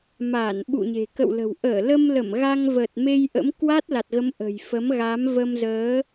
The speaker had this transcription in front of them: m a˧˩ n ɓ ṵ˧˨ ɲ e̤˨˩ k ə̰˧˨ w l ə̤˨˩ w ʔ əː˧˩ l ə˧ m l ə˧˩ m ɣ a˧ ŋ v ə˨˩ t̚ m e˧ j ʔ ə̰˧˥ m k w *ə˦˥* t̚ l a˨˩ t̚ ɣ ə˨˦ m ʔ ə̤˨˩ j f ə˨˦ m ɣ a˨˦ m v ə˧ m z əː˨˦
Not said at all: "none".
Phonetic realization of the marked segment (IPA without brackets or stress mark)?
a˦˥